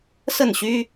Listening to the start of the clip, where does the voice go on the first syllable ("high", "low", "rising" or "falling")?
falling